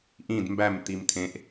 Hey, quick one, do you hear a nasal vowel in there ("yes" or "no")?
yes